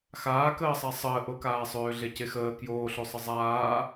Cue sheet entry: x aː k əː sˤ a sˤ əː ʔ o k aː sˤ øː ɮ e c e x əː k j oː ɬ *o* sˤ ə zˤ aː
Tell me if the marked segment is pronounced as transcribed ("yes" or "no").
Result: yes